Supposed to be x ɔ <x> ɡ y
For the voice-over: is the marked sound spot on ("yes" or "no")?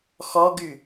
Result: no